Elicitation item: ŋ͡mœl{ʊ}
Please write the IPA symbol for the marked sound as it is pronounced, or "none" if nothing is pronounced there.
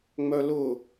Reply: ʊ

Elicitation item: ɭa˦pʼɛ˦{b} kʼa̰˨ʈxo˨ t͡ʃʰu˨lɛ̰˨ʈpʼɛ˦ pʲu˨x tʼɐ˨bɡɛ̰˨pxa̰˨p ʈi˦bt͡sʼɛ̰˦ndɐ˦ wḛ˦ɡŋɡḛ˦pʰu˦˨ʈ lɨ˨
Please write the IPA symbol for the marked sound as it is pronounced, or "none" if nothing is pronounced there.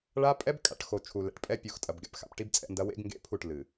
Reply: b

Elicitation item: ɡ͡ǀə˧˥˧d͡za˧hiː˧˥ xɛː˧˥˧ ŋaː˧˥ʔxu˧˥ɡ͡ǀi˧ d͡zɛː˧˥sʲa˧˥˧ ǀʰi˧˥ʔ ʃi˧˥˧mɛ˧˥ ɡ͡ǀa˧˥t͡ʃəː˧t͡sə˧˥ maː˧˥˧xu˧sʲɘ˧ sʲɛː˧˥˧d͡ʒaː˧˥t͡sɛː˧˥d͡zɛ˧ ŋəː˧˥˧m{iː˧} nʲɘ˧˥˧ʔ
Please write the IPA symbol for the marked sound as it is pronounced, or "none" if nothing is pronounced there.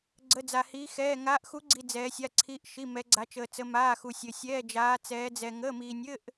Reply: iː˧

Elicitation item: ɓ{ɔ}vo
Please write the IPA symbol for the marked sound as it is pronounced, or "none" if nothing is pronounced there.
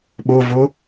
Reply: o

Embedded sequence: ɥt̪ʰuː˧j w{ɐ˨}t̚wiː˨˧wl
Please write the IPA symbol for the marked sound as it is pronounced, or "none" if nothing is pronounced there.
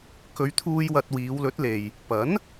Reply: ɐ˧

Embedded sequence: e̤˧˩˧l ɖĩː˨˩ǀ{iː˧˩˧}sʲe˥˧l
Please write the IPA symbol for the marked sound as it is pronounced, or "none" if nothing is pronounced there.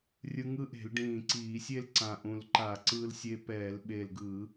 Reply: iː˧˩˧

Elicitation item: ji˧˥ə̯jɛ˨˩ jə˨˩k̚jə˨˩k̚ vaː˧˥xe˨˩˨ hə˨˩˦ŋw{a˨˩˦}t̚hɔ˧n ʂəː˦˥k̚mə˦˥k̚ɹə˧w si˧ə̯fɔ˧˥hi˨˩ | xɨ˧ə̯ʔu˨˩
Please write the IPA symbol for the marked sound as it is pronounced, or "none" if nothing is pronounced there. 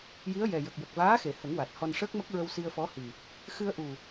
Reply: a˨˩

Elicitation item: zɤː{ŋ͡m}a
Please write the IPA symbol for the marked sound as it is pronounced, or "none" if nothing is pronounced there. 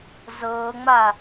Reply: ŋ͡m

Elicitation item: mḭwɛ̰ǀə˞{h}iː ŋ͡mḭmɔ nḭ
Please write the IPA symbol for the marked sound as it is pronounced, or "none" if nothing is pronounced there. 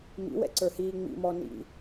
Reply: h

